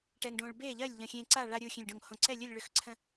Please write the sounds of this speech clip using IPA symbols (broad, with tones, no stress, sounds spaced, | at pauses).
ʈ ɛ˧ ŋ ɖ õː˧ ɭ b eː˥˨ ʎ ɜ˥˨ lʲ ʎ ə̃˧˩ xʲ ẽ˧ ǀ a˥˨ ɭ a˧ ɾʲ u˧˩ xʲ ẽ˧˩ lʲ ɖ õ˧˩ ŋ h õ˧˩ ǀ ɛ˥˨ lʲ ɵ˥˨ lʲ ɭ ʏ˧˩ x ǀʰ ə̃˧